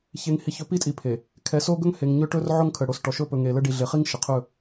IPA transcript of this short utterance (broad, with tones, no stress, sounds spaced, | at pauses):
ç e˨ ŋ h i˨ ç ɵ˨ p i˦ tʼ i˨ pʰ e˨ | kʰ ɛ˨ s o˦ ɡ ɵ˦ ŋ h e˨ ŋ ɲ ɵ˦ ʈ ɵ˦ r ʕ o˦ ŋ kʰ ə˨ ɽ o˨ s ʈ ɔ˨ ʃ ɵ˦˨ p ɵ˨ ŋ e˨ l ə˦ ɖ i˨ ɮ e˨ χ i˦ ŋ ʃ ə˨ qʰ ɵ˦˨